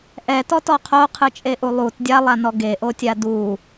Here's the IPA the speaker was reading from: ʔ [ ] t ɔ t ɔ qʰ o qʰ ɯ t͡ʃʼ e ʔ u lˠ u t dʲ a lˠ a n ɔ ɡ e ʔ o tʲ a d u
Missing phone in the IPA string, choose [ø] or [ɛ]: ɛ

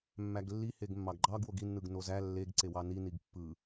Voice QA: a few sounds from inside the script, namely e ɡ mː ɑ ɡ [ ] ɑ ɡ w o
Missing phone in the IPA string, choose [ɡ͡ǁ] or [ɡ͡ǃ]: ɡ͡ǃ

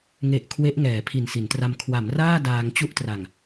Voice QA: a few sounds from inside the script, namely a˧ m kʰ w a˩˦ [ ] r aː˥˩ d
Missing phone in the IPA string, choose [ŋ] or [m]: m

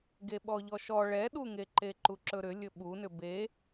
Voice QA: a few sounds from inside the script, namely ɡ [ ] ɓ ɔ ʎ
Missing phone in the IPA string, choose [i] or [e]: e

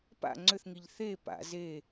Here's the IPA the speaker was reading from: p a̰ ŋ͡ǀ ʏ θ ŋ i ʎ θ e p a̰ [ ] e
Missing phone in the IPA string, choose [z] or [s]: z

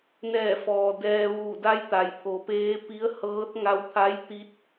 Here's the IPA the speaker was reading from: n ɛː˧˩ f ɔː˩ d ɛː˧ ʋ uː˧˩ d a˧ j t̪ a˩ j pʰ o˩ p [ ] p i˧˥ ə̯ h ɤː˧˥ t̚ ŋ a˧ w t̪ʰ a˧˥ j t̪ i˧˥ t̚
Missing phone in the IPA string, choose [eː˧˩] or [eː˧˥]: eː˧˥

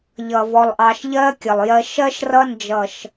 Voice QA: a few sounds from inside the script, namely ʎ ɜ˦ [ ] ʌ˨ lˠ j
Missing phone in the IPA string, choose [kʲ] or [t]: kʲ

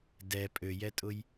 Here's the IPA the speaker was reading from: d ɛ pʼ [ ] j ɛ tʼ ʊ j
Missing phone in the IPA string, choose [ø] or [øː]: ø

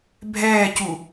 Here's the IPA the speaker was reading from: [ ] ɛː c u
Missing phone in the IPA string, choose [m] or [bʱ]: bʱ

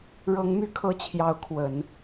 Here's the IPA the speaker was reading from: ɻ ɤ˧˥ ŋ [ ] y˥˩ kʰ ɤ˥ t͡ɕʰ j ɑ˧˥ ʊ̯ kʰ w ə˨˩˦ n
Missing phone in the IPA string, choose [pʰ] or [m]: m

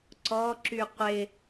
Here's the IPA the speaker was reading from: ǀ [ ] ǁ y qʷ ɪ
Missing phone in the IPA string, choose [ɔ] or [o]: ɔ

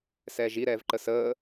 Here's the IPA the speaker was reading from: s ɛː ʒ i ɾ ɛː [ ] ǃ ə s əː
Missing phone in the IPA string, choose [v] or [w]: v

